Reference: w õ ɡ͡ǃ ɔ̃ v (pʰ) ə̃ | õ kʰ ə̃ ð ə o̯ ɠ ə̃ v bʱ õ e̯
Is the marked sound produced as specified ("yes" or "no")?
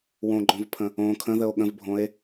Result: yes